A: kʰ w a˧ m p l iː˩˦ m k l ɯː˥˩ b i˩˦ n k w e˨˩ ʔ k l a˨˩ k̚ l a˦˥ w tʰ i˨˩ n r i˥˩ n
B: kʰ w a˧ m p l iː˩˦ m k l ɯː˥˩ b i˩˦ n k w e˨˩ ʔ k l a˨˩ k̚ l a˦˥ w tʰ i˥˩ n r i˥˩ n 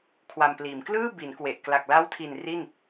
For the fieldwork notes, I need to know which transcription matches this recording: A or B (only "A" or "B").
A